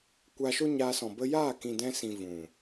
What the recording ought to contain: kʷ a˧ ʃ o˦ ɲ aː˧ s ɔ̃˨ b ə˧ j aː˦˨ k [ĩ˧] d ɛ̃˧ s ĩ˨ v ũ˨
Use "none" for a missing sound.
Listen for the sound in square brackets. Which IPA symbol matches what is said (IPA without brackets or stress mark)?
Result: ĩ˨